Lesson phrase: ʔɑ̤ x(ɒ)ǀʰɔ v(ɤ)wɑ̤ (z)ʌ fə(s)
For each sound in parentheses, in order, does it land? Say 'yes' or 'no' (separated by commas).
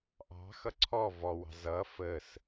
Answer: no, no, yes, yes